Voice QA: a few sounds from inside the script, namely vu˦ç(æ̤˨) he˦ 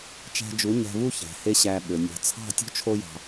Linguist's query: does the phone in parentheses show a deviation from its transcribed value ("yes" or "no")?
no